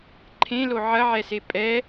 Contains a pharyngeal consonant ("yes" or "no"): yes